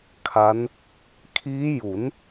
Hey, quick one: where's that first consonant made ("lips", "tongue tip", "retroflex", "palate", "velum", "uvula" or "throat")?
velum